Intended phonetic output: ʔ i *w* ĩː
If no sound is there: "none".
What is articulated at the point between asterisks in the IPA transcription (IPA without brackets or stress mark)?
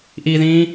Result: ð